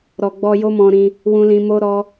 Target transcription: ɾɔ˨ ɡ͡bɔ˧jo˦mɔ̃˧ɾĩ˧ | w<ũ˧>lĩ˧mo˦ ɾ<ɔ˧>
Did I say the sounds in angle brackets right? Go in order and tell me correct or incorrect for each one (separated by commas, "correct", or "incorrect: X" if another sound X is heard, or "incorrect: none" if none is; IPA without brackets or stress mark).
correct, incorrect: ɔ˦